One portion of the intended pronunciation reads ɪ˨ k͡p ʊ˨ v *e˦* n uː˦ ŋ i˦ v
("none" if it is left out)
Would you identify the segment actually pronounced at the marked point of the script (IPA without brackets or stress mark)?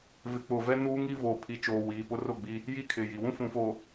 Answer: ɛ˦